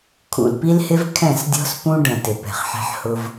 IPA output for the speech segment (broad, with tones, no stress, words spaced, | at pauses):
kʰṵ˨lpi˦lhɪ˦v kʰɛ̃˦˨sdʲɔ̤˦spũ˦ ɖə̃˨ tɪ˨pɛ̤˨χħɛ̤˦ħ hʊ˦v